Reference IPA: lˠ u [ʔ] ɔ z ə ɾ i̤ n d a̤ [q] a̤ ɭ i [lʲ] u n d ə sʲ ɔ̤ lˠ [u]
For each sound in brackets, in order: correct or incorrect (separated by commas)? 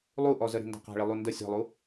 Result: correct, correct, incorrect, correct